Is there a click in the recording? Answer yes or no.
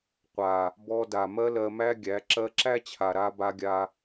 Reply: yes